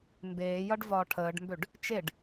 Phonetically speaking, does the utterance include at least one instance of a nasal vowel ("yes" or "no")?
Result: no